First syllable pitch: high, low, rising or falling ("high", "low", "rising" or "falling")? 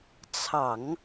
low